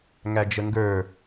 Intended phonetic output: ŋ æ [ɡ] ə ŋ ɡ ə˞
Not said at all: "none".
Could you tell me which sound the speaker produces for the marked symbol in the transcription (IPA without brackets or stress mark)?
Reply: d͡ʒ